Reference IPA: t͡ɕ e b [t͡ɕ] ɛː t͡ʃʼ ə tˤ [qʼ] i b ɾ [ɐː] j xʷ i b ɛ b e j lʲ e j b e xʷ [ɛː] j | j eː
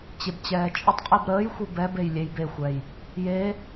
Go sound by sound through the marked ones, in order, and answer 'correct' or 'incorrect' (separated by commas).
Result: correct, correct, incorrect, correct